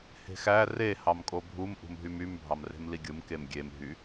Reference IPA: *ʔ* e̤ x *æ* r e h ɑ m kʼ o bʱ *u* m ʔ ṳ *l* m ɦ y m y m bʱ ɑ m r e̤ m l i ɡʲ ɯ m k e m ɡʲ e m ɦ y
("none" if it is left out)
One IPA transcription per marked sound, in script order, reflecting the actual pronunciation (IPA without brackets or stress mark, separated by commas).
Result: h, æ, u, none